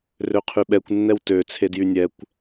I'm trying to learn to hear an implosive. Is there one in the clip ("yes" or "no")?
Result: yes